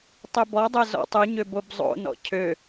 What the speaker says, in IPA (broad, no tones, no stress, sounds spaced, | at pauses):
tˤ ø b ɔ dˤ ø z ɔ̰ tˤ u ɲ ø b o b zˤ o̰ n ɔ̰ cʰ ø